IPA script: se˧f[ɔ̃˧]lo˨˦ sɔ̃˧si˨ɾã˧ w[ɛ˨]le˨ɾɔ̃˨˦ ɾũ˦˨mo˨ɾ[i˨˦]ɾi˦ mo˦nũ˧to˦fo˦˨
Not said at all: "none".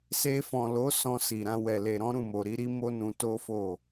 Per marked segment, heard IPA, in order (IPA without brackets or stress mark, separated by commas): ɔ̃˨, ɛ˨, i˨˦